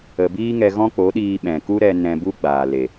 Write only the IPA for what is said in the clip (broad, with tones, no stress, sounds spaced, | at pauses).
ə˨ b iː˦ ŋ ɛ˧ ɣ ɔ̃˦ k͡p o˨˦ ɗ iː˧ ɓ ɛ̃˨ k u˦ ɾ ɛ˧ n ɛ̃˧ b u˦ ɡ͡b aː˨ l e˨